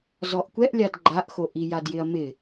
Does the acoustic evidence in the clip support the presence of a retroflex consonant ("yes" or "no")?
no